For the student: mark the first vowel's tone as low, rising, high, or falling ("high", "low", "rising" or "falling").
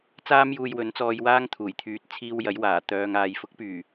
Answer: high